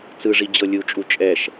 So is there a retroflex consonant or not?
yes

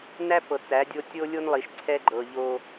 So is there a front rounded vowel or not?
no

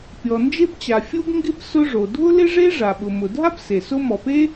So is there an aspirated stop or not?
no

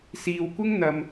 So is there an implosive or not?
no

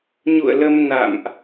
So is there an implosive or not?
no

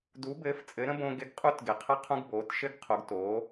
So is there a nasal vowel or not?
yes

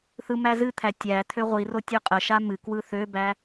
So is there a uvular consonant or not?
yes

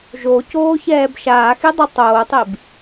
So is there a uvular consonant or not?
no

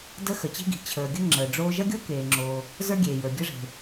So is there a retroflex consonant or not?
yes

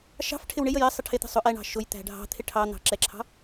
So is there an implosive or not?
no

